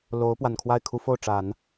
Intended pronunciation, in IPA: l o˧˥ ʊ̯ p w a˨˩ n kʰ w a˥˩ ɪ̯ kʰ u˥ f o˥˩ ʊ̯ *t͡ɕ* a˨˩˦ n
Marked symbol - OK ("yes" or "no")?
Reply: no